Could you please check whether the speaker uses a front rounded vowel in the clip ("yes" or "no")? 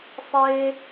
no